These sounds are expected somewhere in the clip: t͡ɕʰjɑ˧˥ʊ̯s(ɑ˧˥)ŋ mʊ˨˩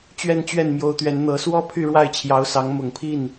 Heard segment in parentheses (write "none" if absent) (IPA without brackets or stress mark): ɑ˧˥